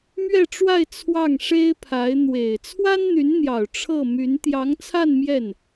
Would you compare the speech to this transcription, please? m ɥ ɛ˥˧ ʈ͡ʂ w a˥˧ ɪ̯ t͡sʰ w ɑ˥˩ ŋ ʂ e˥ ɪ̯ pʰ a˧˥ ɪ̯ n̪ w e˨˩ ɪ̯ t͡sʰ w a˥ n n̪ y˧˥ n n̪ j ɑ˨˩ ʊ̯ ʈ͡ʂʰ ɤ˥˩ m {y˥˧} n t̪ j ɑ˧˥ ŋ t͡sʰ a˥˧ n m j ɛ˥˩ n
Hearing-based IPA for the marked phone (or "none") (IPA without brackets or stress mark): y˧˥